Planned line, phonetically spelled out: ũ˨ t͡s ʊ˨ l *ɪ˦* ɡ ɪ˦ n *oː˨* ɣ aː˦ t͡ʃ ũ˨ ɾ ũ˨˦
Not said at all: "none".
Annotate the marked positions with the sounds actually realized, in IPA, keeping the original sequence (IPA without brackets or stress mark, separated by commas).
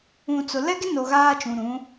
ɛ˦, o˨